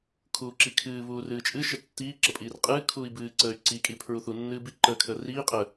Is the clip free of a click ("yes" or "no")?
no